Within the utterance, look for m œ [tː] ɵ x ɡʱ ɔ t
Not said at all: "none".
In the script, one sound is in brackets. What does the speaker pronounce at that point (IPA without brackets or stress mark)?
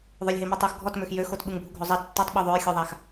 tˤ